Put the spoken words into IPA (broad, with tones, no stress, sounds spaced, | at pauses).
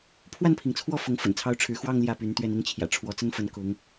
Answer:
pʰ w a˥˨ n pʰ i˩ ŋ t͡sʰ w ɔ˥˨ f ʊ˨˦ ŋ f ə̰˨˩ n t͡sʰ ɑ˦ ʊ̯ ʈ͡ʂʰ ɻ̩˨˦ x w ɑ˥˨ ŋ l j ä˥˨ p y˨˦ n t̪ ɥ ɛ˥˨ n i˥˨ ŋ t͡ɕʰ j ä̰˨˩ ʈ͡ʂʰ w ɔ˨˦ t͡s ə˦ n f ə˨˦ n k ʊ˨˦ ŋ